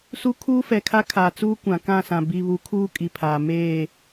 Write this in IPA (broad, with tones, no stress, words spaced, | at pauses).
su˦ kʰuː˦fɛ˨kʰa˦ kʰa˨ t͡suː˦kʷã˨kã˦˨sã˨ bi˨βu˨kʰuː˦ kʼi˨pʰaː˨ meː˦˨